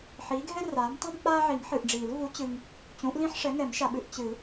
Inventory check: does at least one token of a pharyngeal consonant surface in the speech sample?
yes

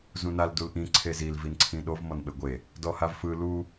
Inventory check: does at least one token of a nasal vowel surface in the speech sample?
yes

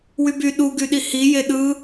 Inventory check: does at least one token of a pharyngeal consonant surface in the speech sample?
no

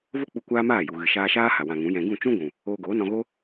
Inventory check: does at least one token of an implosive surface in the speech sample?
no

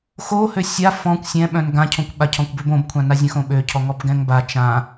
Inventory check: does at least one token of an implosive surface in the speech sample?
yes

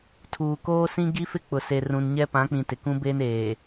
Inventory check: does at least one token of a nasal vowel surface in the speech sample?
yes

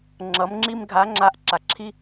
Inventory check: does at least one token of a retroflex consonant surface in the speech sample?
no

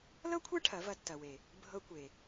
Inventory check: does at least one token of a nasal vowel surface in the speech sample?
no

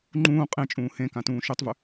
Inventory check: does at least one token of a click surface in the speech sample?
yes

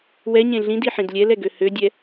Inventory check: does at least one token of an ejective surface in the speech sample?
no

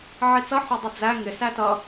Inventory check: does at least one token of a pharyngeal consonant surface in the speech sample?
yes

